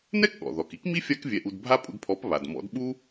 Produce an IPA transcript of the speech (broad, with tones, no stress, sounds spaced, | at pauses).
n ɛ˥ k ɠ ɔ̰˩ ð ɔ˩ k i˥ k m i˥ fʲ a˥ k vʲ ɛ˧ ʔ u˧ d bʱ a˥ pʼ ṵ˧ d pʰ ɔ˩˥ p β a˩ d m ɔ̰˩˥ d ɓ u˥